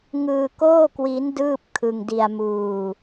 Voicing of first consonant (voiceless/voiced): voiced